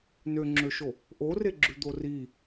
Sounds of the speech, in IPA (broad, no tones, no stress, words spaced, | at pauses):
nøŋ͡ǁøʃo | ʔoreɡ͡ǁʉd̪o ri